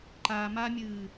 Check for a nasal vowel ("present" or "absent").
absent